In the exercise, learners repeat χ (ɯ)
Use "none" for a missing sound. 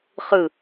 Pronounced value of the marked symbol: ɯ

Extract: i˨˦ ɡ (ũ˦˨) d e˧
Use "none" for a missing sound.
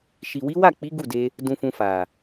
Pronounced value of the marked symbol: u˦˨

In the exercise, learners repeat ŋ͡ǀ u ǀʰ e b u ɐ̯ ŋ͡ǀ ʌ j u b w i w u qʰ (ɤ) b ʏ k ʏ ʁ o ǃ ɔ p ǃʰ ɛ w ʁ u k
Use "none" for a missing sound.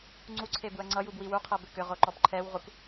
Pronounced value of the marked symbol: ɤ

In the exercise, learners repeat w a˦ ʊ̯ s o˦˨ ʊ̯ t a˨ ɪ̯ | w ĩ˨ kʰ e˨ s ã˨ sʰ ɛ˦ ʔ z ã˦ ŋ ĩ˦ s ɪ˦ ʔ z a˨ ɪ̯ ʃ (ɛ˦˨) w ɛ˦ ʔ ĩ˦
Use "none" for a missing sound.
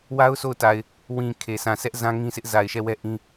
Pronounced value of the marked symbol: ɛ˦˨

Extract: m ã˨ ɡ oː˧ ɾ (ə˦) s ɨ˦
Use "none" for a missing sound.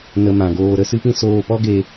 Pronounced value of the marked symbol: ə˦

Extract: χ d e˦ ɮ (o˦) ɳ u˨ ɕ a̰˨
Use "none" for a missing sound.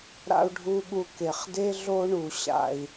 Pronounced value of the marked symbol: o˦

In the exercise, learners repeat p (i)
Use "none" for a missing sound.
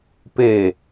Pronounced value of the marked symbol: e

